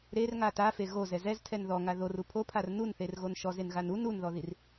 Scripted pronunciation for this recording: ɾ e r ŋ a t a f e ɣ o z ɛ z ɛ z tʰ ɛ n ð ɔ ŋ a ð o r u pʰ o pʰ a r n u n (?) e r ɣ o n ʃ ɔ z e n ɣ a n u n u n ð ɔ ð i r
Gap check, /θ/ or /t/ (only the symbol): θ